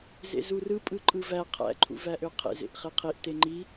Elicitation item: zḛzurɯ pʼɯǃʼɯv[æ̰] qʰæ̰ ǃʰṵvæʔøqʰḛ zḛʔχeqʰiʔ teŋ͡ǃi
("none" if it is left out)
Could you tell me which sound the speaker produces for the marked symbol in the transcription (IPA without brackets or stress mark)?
æ